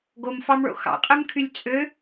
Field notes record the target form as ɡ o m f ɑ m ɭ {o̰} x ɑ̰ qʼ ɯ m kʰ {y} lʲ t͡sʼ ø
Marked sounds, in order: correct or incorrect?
correct, correct

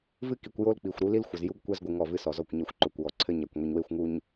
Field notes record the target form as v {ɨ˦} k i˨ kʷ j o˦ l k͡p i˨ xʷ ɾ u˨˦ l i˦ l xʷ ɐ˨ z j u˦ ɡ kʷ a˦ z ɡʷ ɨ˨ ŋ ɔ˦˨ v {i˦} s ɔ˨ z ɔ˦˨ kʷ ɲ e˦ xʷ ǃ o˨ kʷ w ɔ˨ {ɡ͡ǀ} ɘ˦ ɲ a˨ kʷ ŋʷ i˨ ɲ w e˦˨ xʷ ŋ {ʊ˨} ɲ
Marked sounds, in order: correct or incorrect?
correct, incorrect, incorrect, incorrect

